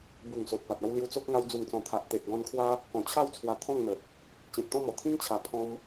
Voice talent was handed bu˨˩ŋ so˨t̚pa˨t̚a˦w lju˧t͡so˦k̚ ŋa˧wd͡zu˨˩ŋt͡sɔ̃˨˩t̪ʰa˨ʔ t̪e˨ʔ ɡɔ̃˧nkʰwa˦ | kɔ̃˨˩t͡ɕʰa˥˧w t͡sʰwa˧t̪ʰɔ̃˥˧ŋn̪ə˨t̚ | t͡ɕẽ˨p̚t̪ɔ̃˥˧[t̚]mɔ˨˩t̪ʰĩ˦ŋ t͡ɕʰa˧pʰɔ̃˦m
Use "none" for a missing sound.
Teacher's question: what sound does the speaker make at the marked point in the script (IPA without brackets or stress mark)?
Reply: none